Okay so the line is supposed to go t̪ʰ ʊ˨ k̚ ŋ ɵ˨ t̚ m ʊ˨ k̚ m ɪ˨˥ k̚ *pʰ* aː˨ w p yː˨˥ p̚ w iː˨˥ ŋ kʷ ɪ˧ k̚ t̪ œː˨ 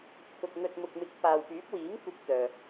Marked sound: incorrect: p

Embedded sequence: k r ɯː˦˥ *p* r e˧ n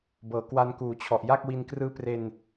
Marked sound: correct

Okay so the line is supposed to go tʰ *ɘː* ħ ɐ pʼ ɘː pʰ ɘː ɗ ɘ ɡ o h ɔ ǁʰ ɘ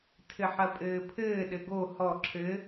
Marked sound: incorrect: ɘ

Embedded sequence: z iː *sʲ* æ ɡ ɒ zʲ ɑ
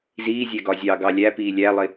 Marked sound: incorrect: zʲ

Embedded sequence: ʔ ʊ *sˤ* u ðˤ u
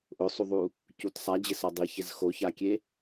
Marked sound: correct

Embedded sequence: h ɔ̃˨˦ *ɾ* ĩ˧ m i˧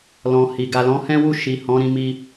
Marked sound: correct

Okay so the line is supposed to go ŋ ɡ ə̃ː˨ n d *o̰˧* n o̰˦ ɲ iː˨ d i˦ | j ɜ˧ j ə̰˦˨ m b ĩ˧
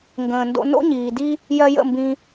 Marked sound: correct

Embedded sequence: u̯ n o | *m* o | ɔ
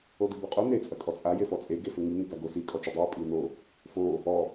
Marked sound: incorrect: f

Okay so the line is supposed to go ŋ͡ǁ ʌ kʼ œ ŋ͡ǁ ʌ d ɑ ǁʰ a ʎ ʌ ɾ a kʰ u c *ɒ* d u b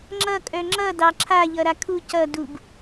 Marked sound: incorrect: ʌ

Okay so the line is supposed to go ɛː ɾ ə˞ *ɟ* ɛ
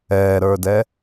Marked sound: incorrect: d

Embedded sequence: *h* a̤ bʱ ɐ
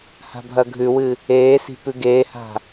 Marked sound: correct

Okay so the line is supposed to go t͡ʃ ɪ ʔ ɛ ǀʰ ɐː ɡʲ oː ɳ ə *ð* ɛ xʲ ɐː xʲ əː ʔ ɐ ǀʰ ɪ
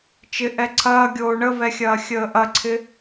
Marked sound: incorrect: v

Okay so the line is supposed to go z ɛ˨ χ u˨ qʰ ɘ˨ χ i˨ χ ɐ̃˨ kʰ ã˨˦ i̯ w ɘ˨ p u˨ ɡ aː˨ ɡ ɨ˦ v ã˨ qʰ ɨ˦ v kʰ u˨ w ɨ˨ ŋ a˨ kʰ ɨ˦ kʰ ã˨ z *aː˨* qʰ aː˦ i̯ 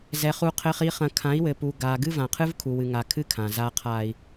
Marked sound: incorrect: aː˦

